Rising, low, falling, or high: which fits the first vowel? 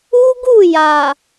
high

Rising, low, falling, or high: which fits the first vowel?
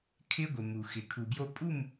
high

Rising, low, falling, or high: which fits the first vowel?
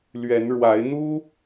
rising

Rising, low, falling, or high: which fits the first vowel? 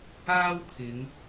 high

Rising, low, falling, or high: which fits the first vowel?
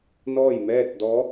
falling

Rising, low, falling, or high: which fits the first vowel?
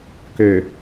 low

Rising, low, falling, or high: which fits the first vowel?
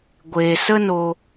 low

